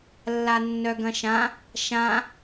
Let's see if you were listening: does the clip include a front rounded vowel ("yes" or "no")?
yes